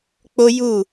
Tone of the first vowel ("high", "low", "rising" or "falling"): high